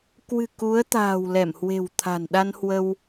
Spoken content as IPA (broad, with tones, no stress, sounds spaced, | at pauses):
k w ɨ̤˨˩ k u˨˦ ə̯ t̪ a̤ː˨˩ w l ɛ˧˩ m h w e̤˨˩ w t̪ʰ a̤˨˩ n ɗ a˧ n h w ə˧ w